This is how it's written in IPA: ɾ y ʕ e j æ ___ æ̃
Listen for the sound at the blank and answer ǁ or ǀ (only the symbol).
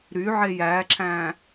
ǁ